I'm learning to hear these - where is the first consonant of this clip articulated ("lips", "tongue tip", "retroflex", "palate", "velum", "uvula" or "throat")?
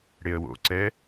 retroflex